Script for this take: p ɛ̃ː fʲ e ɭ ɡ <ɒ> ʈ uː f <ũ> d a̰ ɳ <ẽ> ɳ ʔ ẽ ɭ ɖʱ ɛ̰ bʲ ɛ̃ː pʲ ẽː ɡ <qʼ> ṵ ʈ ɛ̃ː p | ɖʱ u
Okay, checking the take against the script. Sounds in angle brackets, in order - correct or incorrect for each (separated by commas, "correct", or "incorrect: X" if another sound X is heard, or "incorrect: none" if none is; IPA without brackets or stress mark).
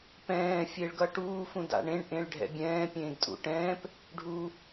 incorrect: ʌ, correct, correct, incorrect: tʼ